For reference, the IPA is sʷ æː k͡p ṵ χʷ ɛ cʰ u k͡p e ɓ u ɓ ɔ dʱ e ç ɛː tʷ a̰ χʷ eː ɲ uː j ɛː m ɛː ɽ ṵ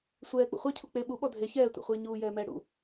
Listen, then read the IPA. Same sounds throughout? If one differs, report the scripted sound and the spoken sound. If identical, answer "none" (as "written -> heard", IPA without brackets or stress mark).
æː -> ɛː